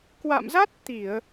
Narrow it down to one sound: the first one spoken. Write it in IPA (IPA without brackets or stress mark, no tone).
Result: k